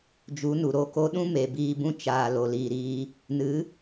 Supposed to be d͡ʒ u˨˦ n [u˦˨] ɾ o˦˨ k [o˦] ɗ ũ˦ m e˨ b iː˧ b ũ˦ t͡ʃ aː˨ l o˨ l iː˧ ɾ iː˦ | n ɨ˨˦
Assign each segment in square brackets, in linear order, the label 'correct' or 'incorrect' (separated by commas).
incorrect, correct